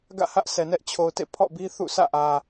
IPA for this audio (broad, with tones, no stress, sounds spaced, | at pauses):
ɡ ä̰˦˨ h ä˦ ʔ sʰ ɛ˨ n ɛ˦ ʔ t͡ɕʰ o˨ ʊ̯ t ḛ˦˨ pʰ ɔ̰˦˨ b i˦ θ ṵ˦˨ s ä̰˦˨ ʔ ä˨